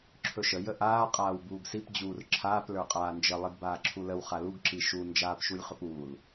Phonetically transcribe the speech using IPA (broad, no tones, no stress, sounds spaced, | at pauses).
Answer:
ǁʰ ɵ ʃ ə j ə ʔ aː qʼ aː w b uː ɡ s i p d͡ʑ uː r ǁʰ aː p l ə˞ qʼ aː n d͡ʒ ə lˠ i ɡ b aː ǁʰ u l ə w χ a l u ɡ ǁ i ʃ u n d͡ʒ aː p ʃ u lʲ χ ɵ p uː l